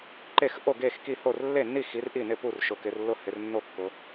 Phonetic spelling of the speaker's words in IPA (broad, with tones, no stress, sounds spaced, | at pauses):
ǃ e˥˩ x ʔ o˥˩ ɡ e˥˩ x k i˥˩ h o˥˩ r lː e˥˩ nː i˥˩ x i˨˦ r ʔ i˥˩ n ɪ˥˩ p u˥˩ r ʃ ʊ˨˦ k ɪ˨˦ r lː ʊ˥˩ h ɪ˨˦ r nː o˥˩ kː ʊ˨˦